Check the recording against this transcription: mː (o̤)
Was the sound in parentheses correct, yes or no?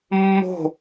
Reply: yes